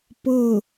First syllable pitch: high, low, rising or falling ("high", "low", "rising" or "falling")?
falling